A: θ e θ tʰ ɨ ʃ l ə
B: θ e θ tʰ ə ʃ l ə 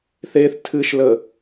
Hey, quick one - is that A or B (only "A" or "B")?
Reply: A